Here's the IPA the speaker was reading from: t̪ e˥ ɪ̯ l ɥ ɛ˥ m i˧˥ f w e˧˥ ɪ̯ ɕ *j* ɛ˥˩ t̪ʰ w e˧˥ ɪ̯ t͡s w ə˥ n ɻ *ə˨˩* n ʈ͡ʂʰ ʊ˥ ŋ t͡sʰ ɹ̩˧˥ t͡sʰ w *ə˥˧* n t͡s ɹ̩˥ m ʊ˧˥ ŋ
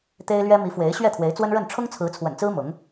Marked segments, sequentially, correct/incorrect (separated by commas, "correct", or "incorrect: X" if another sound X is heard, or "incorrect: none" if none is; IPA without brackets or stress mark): incorrect: ɥ, incorrect: ə˥˩, incorrect: ə̰˨˩